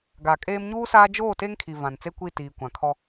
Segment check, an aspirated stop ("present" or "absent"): present